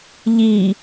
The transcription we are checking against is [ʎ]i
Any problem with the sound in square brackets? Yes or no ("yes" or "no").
no